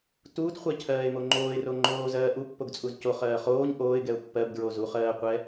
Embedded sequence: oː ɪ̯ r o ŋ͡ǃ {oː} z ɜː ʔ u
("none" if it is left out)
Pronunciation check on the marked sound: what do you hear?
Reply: oː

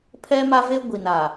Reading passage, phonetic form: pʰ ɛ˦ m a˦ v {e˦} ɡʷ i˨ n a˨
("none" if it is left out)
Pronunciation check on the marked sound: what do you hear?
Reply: e˦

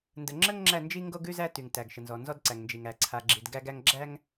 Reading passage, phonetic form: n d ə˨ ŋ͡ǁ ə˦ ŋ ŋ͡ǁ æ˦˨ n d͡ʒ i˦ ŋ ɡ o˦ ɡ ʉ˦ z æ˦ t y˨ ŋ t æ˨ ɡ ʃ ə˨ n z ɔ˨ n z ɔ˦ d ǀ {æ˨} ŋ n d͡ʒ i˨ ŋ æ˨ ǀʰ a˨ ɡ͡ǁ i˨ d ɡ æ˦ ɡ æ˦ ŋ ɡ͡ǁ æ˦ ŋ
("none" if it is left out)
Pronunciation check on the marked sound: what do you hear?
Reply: æ˨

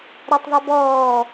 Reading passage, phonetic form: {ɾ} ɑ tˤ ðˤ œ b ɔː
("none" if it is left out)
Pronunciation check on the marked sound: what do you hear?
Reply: ɾ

